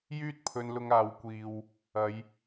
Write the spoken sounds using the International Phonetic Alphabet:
jyː˥t̚pʰɵ˧nlʊ˧ŋ aː˨wkʷiː˨w | ɐ˨˧j

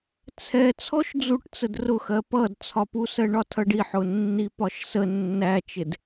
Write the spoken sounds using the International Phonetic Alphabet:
t͡sʰɛ t͡sʰɔʃd͡zuʈt͡səd rʊxɜ pʌdt͡sʰɒpu sɜɳɒtʰʌɖi ħʊnːipɒʃsə nːæt͡ʃɪd

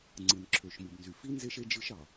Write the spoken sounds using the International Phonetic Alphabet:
ŋ͡ǀɯ˨nǁʰø˨ʃmɯ˨bnzy˨ fi˦nze˦ʃ e˦d͡ʒɯ˦ʃ ɑ˨

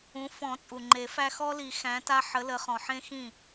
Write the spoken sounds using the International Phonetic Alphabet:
ũ˨˦ fɔ̃˨˩˦t͡sʼu˩ ŋ͡ǃe˨˩˦ fæ˦ xɔ˦li˨˩˦ xæ̃˨˦ta˦ħə˨˦lə˨˦ χɔ̃˩ħẽ˦ xĩ˥˩

